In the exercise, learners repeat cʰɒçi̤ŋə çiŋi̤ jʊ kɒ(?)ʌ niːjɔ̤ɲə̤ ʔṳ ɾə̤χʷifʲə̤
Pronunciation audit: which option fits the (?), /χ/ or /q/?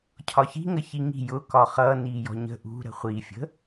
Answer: χ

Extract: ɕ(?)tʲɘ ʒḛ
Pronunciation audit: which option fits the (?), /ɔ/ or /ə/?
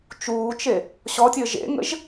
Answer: ɔ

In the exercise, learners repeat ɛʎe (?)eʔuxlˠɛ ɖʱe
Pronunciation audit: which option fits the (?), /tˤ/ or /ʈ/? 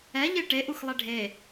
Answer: ʈ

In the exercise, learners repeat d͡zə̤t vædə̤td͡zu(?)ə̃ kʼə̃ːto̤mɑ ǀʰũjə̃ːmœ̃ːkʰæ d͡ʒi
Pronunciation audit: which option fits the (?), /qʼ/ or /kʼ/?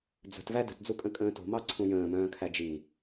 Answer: kʼ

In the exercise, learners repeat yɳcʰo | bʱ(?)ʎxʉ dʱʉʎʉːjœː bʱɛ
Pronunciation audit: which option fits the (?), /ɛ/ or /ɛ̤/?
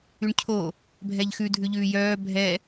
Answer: ɛ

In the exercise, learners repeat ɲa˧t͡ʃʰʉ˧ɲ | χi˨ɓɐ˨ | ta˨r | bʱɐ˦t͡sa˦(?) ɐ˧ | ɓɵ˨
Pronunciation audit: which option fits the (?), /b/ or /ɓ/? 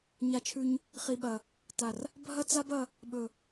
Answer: b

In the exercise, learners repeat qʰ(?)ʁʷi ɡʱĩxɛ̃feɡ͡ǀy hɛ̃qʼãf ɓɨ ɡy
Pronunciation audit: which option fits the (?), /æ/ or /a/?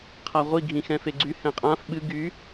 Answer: a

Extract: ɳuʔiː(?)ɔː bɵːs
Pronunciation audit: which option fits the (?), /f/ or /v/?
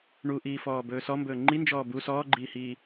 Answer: f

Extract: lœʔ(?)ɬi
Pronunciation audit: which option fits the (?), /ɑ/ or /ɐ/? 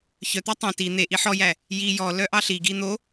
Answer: ɑ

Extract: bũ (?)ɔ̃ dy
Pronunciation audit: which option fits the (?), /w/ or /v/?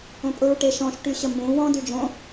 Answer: w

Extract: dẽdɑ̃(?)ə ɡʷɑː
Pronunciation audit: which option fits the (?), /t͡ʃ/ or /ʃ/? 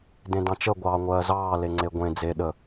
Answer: t͡ʃ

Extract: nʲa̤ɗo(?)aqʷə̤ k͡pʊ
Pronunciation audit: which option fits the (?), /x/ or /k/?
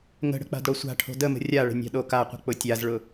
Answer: k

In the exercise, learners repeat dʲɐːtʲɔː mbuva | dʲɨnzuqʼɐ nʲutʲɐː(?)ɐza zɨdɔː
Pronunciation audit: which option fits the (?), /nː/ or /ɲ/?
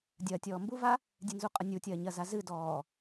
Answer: ɲ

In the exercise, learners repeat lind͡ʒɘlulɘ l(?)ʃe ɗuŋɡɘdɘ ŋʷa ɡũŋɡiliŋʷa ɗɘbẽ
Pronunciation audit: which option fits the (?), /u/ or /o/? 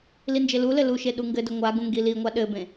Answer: u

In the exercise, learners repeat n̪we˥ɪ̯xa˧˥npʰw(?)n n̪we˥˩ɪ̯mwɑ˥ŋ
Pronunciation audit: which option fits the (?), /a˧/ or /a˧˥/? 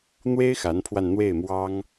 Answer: a˧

